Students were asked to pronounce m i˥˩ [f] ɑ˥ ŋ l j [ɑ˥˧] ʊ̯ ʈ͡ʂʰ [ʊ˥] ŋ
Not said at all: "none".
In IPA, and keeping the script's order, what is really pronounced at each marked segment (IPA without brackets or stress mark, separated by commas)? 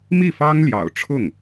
f, ɑ̰˨˩, ʊ˥˩